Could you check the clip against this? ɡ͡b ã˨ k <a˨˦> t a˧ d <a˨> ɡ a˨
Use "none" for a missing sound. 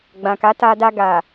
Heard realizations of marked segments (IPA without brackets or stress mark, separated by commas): a˨˦, a˧